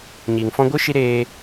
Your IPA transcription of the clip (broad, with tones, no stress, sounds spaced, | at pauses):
ɲ iː˨ ŋ f ɔ̃˧ ɡʷ ɨ˦ ʃ i˧ ɾ eː˧